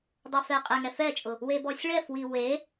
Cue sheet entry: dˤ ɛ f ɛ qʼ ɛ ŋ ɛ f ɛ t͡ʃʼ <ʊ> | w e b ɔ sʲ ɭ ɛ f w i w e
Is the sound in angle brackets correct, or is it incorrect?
correct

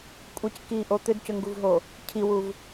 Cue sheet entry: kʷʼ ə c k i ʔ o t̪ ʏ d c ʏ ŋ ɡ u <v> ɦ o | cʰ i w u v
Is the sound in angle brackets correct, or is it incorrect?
correct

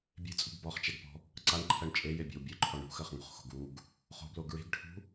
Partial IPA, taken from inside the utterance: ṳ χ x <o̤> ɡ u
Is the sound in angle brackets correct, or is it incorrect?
correct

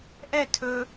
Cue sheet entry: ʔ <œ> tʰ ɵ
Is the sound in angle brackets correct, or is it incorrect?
incorrect: ɛ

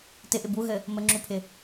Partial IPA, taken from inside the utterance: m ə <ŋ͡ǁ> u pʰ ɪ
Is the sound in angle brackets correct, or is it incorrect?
correct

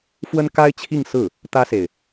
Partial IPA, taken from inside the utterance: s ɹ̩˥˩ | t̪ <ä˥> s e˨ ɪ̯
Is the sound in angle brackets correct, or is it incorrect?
correct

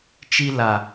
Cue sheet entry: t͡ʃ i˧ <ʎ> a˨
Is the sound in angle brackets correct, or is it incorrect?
incorrect: l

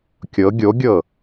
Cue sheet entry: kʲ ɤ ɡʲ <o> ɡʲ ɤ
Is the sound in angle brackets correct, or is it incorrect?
correct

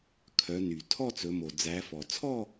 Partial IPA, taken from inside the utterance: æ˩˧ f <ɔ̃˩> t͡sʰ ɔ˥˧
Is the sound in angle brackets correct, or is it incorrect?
incorrect: ɔ˩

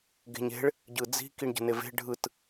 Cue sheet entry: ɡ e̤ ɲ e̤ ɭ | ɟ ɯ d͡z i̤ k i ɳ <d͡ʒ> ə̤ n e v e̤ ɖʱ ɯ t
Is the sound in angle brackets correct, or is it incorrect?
incorrect: ɟ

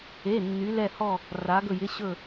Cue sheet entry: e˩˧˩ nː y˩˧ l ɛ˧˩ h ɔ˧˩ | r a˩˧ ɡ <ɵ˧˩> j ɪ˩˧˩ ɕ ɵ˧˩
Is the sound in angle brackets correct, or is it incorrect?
correct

